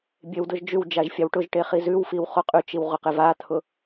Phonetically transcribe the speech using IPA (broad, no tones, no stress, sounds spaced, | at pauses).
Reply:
bʲ e w d ʊ ʒ d͡ʒ ʉ w d͡ʒ a ʒ fʲ a w ʈ ʊ ʒ ʈ e χ i z ʉ w f i w χ o qʼ ʉ t͡ʃ i w ʁ ʊ q e v a t̪ʰ ʊ